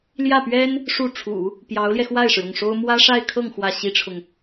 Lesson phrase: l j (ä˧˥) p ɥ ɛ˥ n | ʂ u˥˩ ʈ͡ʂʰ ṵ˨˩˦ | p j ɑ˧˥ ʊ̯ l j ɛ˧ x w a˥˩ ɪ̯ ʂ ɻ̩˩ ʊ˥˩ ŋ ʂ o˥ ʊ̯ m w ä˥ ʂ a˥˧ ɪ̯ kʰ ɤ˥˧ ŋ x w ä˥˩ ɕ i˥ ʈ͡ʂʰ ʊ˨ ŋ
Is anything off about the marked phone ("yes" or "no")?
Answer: yes